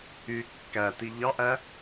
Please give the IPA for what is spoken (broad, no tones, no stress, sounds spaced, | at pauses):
y kː æ t i ʎ ɑ ʔ æ